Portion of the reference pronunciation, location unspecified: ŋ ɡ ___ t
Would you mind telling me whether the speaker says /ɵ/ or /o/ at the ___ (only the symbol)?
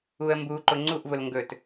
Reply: ɵ